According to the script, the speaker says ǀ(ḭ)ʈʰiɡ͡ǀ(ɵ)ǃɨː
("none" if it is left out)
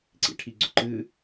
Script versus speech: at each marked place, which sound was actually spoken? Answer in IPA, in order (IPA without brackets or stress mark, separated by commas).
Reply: ḭ, ɵ